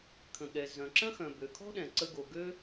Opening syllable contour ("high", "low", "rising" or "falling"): low